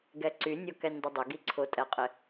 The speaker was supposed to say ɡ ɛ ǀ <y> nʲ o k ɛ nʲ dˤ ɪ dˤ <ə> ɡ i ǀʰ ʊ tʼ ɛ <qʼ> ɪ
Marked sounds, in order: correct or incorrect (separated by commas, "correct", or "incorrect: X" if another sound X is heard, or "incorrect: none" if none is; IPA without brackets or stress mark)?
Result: correct, correct, correct